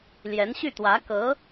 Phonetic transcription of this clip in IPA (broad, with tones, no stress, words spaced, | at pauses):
ljɛ˧˥nɕy˥˩t̪wä˧˥ kɤ˧˥